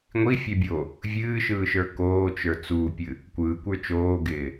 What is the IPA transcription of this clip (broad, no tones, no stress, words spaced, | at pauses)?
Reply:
ŋʷifʲɛbʲo | vʲɨːʃɯːʃə˞ koːt͡ʃə˞ t͡suːpʲɨ | kʷɯːkʷə˞ t͡ʃoːɡɪː